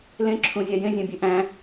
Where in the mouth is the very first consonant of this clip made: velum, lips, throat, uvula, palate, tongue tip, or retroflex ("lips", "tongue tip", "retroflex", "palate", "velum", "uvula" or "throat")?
tongue tip